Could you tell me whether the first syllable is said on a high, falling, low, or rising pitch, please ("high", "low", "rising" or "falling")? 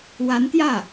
rising